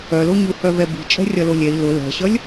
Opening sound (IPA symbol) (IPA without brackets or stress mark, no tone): œ